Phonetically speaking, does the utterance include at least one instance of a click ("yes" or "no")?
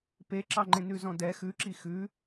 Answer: yes